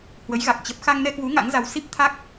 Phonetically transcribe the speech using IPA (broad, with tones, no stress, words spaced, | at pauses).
hwə˨˦jɣa˨˩k̚ t͡ɕə˦˥p̚ xa˧ŋnɛ˧kwu˨˦ ŋa̰˧˥ŋza˧w si˦˥p̚t̪ʰa˦˥k̚